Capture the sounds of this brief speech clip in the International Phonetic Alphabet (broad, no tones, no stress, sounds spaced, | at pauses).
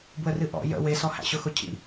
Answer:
b w ə r ɨ ʔ ɔ̰ j ə̰ w e s ɔ h æ̰ ɕ ʊ x ʊ cʰ ḭ